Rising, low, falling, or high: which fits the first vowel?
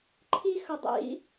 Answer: high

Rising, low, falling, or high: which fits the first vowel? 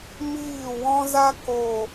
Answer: falling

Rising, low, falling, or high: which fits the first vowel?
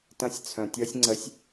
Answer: high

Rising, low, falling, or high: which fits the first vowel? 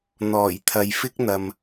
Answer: low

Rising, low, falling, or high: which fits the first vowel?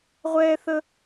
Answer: high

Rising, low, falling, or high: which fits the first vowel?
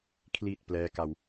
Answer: low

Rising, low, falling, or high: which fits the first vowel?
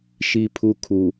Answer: high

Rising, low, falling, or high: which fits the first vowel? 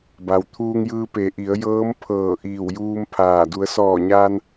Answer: low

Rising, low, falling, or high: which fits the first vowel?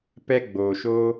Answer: high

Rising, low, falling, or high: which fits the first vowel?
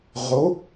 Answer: rising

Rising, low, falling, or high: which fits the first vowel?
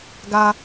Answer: high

